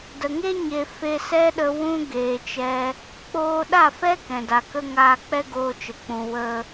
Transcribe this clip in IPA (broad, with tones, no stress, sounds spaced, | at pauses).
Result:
d ə˨ ŋ e˦ ɲ e˧ f e˧ s ɛ˦ ɗ ə˧ w ũ˦ ɡ eː˧ t͡ʃ ɛ˦ | k͡p oː˧ ɗ a˦˨ f ɛ˦ k ɛ̃˨ d a˨ k ə˦ ŋ aː˧ k͡p ɛ˦ ɡ oː˧ t͡ʃ ə˨ k͡p ũ˨ w ə˧